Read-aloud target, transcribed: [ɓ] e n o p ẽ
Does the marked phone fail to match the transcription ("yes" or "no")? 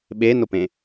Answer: no